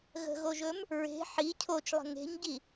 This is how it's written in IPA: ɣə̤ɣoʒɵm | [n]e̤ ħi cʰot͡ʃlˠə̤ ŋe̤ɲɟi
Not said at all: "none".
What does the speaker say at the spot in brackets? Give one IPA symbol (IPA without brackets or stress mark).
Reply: ɹ